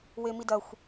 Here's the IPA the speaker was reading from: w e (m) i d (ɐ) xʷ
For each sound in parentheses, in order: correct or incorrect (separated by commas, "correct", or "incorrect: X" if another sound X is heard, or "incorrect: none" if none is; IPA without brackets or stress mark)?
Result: correct, correct